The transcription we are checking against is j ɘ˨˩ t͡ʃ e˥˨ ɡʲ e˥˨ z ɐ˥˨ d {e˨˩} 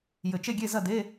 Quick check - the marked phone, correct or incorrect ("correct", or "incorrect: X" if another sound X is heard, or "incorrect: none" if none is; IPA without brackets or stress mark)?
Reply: incorrect: e˧˥˧